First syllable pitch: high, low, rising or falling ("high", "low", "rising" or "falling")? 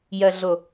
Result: low